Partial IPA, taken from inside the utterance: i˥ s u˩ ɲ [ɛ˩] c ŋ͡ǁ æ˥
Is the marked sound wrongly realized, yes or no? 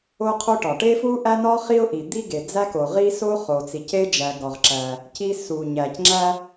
yes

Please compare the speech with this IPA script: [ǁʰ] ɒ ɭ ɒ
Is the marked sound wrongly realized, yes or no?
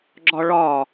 yes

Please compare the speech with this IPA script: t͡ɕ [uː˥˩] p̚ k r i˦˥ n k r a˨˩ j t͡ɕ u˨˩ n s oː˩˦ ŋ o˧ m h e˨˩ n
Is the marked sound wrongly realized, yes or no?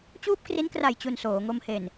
no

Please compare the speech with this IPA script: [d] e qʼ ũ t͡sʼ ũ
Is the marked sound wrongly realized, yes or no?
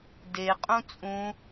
no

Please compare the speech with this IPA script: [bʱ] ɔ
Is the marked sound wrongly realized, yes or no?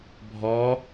no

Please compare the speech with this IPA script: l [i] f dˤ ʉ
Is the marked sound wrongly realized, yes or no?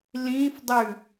yes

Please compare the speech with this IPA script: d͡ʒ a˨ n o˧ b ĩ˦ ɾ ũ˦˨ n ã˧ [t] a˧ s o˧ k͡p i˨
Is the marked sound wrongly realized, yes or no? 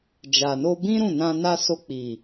yes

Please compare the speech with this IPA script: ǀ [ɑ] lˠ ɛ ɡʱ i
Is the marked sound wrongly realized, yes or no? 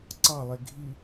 no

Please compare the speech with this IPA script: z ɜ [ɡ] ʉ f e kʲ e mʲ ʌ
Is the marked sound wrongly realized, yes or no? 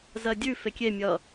yes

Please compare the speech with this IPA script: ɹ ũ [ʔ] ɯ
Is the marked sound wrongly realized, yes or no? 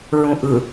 no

